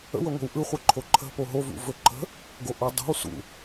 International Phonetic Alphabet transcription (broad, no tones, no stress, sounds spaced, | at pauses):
ə̰ w ə ŋʷ ə̤ w ʔ ɯ χʷ ə ǃʰ o ǃʰ ə̤ p o ɦ o v ṵ v ɵ ǃ ə̤ | ɡ o ʔ o dˤ o̤ w s ṵ